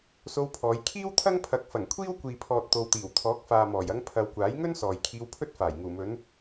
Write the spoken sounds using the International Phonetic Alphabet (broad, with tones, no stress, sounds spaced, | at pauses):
s o˧ w pʰ ɔː˨˧ j kʰ iː˥ w t̪ʰ ɐ˥ ŋ pʰ ɐ˨˥ k̚ f ɐ˨˩ ŋ kʷʰ iː˥ w kʷ iː˨ pʰ ɔː˨ t̚ t̪ o˨ w t̪ iː˨˩ w t̪ʰ ɔː˨˥ k̚ f aː˨ m ɔː˨˩ j ɐ˧ ŋ pʰ ɐ˨ w kʷ aː˨˥ j ŋ ɵ˥ n s ɔː˨ j kʰ iː˧ w pʰ ɵ˥ t̚ f aː˨˩ j ŋ uː˨˩ m ɵ˨˧ n